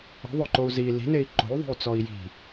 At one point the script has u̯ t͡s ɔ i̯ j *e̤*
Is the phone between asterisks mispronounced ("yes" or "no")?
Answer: yes